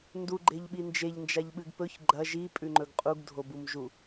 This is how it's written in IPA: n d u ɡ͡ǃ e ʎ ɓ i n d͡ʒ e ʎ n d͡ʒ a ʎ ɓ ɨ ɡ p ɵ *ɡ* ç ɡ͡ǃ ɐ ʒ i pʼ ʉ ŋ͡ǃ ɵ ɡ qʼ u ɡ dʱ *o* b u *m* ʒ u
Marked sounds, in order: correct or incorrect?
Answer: incorrect: none, correct, correct

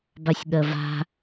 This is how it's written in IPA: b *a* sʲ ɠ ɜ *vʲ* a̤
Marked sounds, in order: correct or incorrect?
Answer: correct, incorrect: v

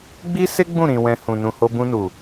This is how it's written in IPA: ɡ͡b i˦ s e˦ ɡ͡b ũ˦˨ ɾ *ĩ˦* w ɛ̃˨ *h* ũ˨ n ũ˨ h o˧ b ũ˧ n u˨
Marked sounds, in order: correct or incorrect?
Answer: incorrect: ĩ˨, correct

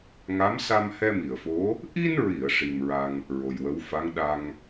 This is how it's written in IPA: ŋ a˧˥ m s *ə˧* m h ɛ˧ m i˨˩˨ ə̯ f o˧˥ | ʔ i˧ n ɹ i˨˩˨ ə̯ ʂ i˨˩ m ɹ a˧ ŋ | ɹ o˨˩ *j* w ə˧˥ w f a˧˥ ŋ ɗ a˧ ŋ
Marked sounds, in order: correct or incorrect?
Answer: incorrect: a˧, correct

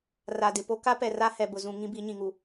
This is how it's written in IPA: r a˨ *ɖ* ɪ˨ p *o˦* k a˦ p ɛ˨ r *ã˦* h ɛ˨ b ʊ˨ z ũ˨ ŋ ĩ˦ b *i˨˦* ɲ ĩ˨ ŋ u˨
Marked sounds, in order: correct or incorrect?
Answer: incorrect: d, correct, incorrect: a˦, correct

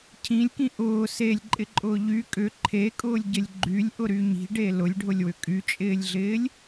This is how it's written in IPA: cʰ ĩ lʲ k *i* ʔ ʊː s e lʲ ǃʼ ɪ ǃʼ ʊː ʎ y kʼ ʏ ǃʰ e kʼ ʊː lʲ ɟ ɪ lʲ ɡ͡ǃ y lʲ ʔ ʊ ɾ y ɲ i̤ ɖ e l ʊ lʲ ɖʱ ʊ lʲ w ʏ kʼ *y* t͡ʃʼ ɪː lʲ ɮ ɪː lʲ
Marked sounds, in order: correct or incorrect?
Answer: incorrect: ĩ, correct

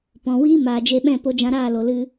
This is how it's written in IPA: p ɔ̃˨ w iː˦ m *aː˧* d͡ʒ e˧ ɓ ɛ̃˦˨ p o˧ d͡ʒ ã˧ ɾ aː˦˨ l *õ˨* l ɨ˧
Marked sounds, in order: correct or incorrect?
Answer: incorrect: aː˨, incorrect: o˨

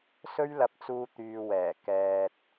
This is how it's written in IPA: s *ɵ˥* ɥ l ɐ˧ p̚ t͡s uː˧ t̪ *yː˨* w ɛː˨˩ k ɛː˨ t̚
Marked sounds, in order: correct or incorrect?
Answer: correct, correct

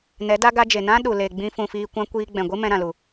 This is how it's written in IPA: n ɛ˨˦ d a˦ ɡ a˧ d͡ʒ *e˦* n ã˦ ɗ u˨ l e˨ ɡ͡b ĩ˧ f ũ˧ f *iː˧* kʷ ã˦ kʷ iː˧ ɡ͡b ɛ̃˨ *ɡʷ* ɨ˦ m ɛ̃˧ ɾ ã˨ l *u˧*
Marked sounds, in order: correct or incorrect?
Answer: incorrect: e˨, correct, correct, incorrect: u˨

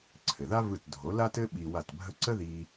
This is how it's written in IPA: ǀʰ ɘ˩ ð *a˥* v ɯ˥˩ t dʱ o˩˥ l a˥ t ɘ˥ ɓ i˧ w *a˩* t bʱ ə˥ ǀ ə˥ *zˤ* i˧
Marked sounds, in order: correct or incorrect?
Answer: correct, incorrect: a˥˩, incorrect: ð

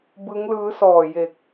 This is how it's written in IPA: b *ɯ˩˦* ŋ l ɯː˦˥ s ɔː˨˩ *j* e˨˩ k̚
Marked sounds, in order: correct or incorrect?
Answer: incorrect: ɯ˦˥, correct

